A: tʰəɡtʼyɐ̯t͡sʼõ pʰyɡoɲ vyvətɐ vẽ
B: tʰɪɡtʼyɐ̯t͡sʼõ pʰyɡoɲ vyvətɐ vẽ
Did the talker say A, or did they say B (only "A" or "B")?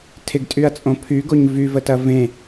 B